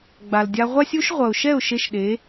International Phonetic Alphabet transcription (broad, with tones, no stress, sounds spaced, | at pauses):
ɡ͡b a˨ l dʲ a˧ ʁʷ a˦ sʲ u˦ ʃ ʁʷ ʌ˨ ʊ̯ ʃ ɛ˦˨ ʊ̯ ʃ e˧ ʃ ɗ e˨˦